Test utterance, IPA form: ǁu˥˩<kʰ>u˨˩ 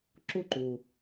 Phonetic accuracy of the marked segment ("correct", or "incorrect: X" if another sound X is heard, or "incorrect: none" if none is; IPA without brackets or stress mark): incorrect: ǃ